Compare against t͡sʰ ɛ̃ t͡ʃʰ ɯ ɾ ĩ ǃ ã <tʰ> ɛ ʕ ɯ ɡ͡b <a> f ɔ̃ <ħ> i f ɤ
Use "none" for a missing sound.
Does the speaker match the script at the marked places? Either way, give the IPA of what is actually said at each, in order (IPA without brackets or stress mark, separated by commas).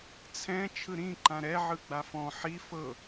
ɾ, a, ħ